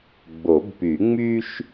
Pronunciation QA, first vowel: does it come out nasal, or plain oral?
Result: oral